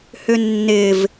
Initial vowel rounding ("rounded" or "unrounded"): rounded